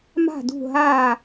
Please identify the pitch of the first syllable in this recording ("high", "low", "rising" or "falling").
falling